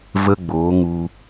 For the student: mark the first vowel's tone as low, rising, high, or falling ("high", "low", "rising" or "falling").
high